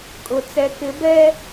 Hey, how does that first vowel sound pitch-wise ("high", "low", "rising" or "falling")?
low